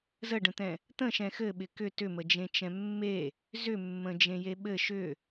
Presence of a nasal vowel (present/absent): present